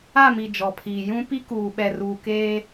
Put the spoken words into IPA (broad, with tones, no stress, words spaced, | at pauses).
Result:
a˦˨mi˨ d͡ʒɔ˨pʰiː˨ jũ˦ pi˦kuː˨ɓɛ˨ruː˨ keː˦